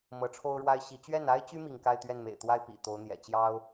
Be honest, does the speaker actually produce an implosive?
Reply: no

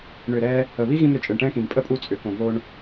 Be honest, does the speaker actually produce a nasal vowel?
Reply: yes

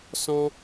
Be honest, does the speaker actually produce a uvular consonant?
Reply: no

